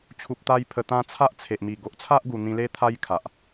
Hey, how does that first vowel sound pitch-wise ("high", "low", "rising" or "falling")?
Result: low